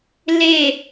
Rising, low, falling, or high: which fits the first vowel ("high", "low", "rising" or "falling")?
falling